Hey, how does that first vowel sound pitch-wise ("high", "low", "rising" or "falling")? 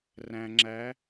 low